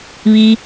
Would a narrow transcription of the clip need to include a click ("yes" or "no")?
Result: no